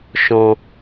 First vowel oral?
no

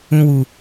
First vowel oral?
no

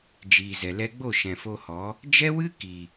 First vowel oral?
yes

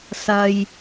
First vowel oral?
yes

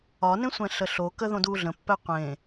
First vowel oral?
yes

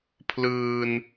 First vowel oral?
yes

